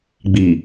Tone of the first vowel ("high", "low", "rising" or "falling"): low